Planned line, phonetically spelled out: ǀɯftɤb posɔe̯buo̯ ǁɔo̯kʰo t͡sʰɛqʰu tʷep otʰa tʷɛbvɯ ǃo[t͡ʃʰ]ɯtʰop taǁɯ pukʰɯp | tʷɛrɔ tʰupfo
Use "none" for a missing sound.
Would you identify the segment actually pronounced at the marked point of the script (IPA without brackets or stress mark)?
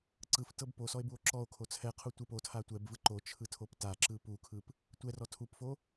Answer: t͡ʃʰ